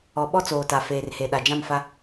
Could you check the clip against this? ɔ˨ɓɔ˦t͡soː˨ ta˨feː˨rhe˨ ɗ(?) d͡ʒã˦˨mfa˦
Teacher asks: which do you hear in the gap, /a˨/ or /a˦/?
a˨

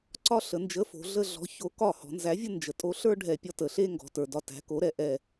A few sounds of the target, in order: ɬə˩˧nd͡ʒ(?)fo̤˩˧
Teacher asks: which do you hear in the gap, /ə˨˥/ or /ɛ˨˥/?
ə˨˥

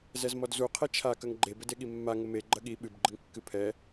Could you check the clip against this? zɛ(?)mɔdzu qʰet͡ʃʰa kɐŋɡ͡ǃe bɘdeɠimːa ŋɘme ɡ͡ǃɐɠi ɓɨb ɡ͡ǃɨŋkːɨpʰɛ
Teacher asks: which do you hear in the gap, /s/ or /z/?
z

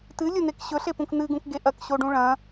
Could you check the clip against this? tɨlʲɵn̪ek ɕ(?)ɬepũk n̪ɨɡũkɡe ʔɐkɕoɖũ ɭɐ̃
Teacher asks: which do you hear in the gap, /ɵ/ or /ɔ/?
ɵ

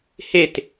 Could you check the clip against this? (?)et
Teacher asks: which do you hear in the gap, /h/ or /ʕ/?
h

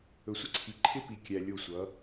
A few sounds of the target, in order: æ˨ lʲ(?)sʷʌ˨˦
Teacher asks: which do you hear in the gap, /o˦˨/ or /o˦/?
o˦˨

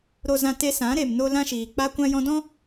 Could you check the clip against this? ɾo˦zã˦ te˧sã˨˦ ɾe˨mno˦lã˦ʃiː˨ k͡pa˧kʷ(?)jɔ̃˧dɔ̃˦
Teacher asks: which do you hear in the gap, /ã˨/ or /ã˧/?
ã˧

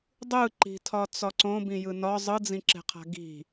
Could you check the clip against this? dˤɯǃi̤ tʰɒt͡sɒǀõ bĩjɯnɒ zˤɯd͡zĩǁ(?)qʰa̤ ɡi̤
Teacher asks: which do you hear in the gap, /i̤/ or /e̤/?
e̤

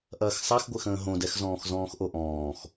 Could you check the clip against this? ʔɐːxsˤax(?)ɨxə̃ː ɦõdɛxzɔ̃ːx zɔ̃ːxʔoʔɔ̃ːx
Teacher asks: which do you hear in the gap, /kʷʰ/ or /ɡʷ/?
ɡʷ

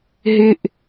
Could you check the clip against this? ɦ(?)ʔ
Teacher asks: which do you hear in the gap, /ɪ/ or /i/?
ɪ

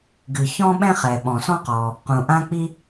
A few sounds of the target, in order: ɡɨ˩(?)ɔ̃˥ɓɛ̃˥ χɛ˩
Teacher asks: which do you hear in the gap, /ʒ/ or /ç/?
ç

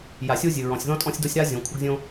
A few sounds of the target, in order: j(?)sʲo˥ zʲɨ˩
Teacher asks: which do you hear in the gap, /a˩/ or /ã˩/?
a˩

